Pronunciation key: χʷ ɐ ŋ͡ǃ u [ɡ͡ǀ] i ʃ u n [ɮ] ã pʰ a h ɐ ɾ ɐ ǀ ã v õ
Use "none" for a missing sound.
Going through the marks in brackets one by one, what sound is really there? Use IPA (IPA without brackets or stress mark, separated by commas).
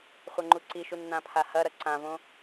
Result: ǀ, n̪